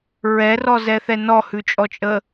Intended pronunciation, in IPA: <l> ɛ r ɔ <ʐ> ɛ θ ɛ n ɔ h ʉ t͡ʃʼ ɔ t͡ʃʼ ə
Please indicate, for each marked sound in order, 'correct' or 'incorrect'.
incorrect: ɹ, incorrect: z

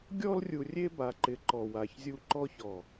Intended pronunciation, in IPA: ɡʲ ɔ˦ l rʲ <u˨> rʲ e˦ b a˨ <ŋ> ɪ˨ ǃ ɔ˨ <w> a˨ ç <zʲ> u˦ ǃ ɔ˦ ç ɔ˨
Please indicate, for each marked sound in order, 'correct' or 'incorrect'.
correct, incorrect: ǃ, correct, correct

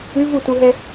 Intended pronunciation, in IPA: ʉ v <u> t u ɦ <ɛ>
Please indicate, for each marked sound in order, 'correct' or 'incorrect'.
correct, correct

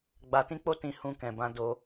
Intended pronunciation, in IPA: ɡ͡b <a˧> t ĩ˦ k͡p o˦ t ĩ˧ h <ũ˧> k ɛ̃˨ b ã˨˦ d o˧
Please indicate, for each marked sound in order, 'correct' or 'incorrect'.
correct, correct

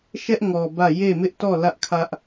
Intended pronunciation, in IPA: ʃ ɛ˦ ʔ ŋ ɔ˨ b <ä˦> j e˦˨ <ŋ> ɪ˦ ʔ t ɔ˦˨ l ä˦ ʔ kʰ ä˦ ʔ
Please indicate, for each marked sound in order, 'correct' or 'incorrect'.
incorrect: ä˦˨, incorrect: m

